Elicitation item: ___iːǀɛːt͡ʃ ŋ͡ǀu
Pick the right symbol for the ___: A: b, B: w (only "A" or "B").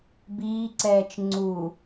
A